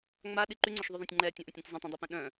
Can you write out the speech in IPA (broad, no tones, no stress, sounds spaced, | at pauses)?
ŋ͡m a ɗ i ǃ y ŋ͡ǀ ø ʃ ðˤ y ðˤ ɛ̃ tʲ ŋ͡ǃ ɛː tʲ ã ʔ õ tʲ ɾ ɛ̃ tʲ zˤ ɛ̃ tˤ ũ dˤ œ p ɛ̃ ɗ œ̃